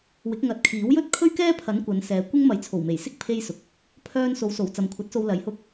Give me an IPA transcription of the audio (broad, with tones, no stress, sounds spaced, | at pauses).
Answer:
w ɪ˨˥ k̚ ŋ ɐ˨˥ t̚ kʰ iː˨˥ w j ɵ˥ t̚ kʰ ɵ˥ ɥ k ɛː˥ pʰ ɐ˨˥ n kʷ ɐ˨˧ n s ɛː˨˧ kʷ ɪ˥ ŋ m ɐ˨ j t͡sʰ o˨˩ w m e˨˩ j s ɪ˥ k̚ pʰ e˥ j s ʊ˨ k̚ | pʰ œː˧ n s o˨˥ w s o˨˩ w t͡s ɐ˨ m kʷʰ ɐ˨˥ t̚ s o˧ w l ɐ˨˧ j h ʊ˥ k̚